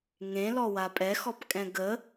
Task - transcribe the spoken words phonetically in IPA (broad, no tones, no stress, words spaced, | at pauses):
ŋẽlɔwa pʼɛxɔpkʼɛ̃ ɡə